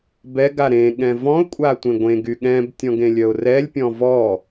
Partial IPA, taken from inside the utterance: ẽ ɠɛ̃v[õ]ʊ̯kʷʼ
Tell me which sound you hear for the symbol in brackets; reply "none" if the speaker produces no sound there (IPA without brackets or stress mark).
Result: ɔ̃